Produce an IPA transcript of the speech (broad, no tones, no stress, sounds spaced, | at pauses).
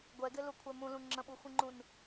ɡʷ ɛ ɡ ɪ l u kʷʰ ɛ m ũ l ũ ŋ͡ǁ ə̃ ɓ u xʷ ĩ ŋ͡ǃ ũ n